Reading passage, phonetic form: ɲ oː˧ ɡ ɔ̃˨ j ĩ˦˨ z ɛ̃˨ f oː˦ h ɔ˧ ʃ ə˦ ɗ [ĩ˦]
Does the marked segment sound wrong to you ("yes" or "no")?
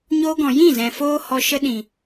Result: yes